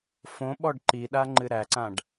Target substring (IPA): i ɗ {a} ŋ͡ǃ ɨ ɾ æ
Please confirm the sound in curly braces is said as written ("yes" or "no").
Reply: yes